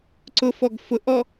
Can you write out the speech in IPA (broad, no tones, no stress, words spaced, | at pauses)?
ǀʊfɔɡ fʊʔɔ